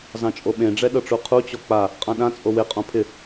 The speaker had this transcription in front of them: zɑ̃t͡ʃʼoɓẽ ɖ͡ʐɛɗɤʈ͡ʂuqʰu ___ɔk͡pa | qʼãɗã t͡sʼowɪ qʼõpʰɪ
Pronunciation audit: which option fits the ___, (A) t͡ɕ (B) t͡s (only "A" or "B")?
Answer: A